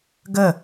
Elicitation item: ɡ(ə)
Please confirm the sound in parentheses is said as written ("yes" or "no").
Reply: yes